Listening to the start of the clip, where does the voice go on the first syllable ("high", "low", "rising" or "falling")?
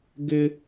high